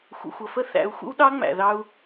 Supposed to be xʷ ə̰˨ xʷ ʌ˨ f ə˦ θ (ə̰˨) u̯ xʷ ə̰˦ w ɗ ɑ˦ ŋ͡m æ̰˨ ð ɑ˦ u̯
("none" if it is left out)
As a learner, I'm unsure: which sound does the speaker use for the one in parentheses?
æ̰˨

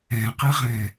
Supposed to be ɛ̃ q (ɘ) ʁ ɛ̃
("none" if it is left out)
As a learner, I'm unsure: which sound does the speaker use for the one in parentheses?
ɘ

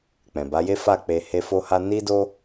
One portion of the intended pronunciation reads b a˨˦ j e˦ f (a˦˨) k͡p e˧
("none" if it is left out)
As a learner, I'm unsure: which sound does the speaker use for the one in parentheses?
a˦˨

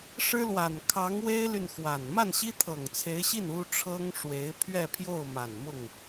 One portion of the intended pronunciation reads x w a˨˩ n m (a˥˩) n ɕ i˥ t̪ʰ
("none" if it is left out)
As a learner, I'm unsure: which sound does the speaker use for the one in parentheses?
a˥˩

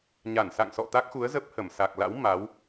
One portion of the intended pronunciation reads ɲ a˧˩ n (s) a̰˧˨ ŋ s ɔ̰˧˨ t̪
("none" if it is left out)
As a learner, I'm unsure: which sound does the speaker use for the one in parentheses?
s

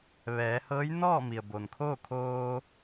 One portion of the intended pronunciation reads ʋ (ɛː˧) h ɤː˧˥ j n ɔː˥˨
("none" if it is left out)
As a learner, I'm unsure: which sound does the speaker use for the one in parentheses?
ɛː˩˧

